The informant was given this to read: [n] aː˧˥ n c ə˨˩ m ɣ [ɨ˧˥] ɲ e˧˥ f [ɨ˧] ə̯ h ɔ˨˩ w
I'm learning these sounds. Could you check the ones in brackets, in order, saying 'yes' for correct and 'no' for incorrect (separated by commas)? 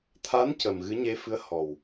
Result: no, yes, no